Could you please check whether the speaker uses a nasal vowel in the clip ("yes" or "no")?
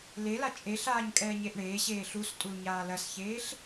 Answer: no